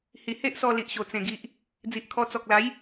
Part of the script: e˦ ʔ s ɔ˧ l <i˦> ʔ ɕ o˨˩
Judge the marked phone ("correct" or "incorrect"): incorrect